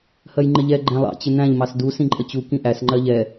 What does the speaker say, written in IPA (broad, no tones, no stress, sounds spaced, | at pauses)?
h ɜ j ŋ͡ǃ ɪ ʎ ɛ ɡ͡ǃ æ̃ lˠ ɑ̰ t͡ɕ ɪ n̪ æ̃ ʎ m ɑ s d u s ĩ ǃʼ ə t͡ɕ u k ĩ ʔ æ s ŋ͡ǃ ɜ ʎ ɛ